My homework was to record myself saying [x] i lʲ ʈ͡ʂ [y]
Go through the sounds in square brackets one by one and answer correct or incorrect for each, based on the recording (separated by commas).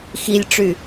correct, correct